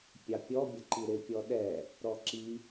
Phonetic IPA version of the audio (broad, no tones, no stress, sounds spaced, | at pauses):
pʲ ɑ pʲ ɔ bʲ ə ǃ i ɾ ɪ pʲ ɔ ɗ ɛ | ɾ ɔ ǁ i